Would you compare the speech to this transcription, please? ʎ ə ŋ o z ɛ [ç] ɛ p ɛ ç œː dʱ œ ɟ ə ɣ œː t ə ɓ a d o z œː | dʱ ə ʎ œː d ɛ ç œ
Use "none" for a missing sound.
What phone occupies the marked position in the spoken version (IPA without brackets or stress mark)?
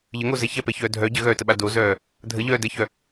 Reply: ç